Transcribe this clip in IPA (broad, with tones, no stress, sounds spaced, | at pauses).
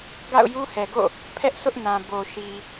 ɡ a̰˦˨ ʊ̯ j u˦ h ɛ˨ ɡ o̰˦˨ | pʰ ɛ˦ ʔ s ʊ˦ ʔ n ã˨ b o˨ ʃ i˨